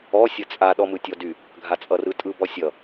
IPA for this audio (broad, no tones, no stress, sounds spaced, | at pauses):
ɔ sʲ ʌ t͡sʼ a ɗ ɔ m ɯ tʲ ɔ d y | ɡʱ a t͡sʼ ʌ r ɯ tʼ ɯ b ɔ sʲ ʌ